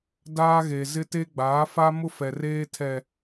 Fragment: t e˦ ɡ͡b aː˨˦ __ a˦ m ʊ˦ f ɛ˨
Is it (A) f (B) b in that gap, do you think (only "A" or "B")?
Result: A